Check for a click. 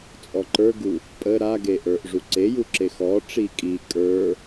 present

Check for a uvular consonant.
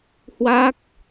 absent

